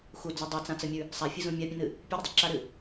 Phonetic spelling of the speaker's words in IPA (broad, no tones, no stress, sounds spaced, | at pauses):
x u d͡z ɐ dˤ u t͡s ã t͡s ɐ mʲ ʉ | sˤ a fʲ ɨ z ũ mʲ a pʲ ũ n ɨ | pʲ ʉ ɾ ɐ dˤ ɨ ǁ a ɾ ɨ